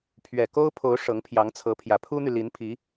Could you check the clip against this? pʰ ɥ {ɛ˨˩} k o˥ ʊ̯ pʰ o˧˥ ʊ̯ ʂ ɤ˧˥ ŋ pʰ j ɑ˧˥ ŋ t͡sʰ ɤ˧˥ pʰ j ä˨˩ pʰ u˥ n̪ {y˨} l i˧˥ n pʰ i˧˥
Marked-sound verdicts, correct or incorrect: correct, correct

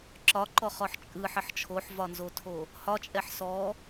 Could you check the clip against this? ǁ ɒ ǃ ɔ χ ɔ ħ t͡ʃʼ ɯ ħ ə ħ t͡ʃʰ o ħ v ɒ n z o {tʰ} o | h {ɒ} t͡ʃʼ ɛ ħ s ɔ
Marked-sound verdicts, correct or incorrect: correct, correct

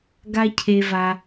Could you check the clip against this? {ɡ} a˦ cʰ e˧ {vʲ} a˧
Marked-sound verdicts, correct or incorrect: correct, incorrect

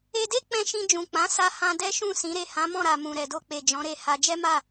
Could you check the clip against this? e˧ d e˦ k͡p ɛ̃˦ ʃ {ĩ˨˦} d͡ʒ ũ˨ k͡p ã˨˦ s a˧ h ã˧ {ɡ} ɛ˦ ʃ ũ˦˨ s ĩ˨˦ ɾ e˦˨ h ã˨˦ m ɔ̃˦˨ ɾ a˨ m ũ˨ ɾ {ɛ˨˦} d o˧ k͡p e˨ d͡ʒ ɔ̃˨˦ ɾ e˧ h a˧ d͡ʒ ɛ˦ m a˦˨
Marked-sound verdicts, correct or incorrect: incorrect, incorrect, incorrect

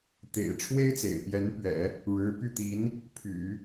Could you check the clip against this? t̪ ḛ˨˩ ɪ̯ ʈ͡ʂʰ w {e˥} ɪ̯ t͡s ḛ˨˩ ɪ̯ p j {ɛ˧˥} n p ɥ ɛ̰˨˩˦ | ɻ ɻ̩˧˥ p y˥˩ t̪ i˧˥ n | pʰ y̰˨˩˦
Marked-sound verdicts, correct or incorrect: correct, correct

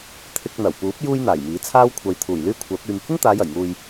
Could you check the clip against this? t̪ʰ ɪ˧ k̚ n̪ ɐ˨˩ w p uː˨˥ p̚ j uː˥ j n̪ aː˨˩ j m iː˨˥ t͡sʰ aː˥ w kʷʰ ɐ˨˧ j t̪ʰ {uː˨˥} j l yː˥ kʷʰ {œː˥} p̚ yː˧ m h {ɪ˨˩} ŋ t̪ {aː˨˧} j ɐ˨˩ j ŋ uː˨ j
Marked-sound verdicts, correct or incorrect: incorrect, incorrect, incorrect, correct

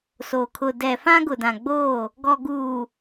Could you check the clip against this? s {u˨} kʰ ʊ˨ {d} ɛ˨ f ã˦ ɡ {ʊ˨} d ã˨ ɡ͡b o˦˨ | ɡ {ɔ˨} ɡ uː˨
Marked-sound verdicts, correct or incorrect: incorrect, correct, correct, correct

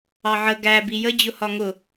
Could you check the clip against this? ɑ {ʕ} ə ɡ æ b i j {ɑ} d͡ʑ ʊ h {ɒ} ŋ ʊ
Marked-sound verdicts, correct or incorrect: correct, incorrect, correct

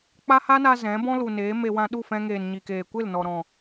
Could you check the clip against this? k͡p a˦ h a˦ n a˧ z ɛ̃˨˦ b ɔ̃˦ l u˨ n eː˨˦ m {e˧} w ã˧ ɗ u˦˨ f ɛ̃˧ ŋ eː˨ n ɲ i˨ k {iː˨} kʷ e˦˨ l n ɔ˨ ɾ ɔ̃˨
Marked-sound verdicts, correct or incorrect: correct, incorrect

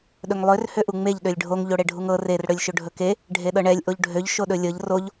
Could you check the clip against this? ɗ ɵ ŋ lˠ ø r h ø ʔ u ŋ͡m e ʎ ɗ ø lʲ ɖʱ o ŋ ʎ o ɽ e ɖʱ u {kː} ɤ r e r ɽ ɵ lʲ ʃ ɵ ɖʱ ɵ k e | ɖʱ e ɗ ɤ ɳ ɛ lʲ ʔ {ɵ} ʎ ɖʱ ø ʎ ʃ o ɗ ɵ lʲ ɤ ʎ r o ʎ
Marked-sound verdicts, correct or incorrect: incorrect, incorrect

